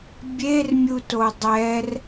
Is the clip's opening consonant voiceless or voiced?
voiced